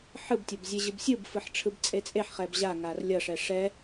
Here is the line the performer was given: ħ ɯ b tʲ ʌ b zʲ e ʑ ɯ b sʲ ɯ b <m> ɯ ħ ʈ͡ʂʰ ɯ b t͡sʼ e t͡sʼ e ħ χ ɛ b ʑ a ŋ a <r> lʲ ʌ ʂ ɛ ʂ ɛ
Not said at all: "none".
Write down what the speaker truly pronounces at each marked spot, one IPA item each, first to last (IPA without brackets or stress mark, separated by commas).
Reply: f, r